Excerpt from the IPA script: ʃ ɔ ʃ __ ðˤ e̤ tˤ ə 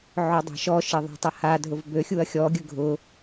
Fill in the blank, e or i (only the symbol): e